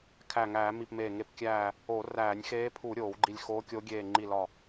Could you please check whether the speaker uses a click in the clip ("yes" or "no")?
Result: yes